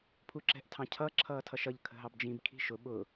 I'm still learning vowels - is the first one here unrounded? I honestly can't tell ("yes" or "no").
no